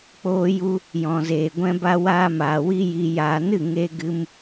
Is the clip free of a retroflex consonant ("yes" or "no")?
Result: yes